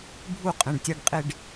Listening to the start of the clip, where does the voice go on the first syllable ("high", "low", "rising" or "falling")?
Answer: falling